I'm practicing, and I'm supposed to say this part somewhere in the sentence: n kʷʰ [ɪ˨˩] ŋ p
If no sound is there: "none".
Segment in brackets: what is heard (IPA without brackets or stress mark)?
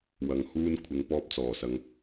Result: ɪ˨˧